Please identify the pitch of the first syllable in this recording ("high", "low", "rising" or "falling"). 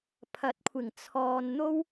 rising